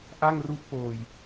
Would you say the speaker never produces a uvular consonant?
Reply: yes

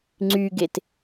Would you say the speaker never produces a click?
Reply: no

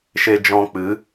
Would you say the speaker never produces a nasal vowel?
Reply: no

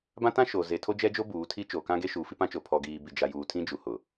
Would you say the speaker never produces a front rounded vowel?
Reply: yes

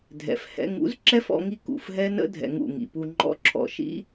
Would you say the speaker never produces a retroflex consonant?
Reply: yes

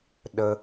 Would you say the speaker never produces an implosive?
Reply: no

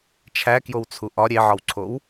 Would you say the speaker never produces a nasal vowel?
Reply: yes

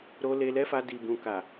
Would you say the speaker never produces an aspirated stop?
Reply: yes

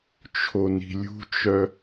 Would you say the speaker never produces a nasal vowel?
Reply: yes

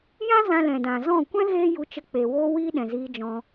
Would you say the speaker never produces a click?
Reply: yes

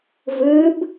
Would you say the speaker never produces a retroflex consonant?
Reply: yes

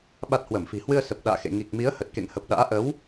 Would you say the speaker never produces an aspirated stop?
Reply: yes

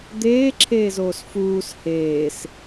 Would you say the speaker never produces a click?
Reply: no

